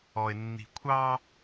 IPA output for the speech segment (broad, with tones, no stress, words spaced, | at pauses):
ɔ˨ɪ̯nːi̤˨kʷʰɑ˦